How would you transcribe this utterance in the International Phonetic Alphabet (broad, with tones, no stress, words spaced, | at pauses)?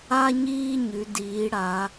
a˦ɲiː˦ ɲʉ˨˦diː˨˦ɽa˨˦